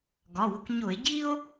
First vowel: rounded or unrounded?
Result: rounded